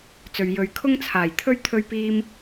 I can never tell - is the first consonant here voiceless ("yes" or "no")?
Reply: yes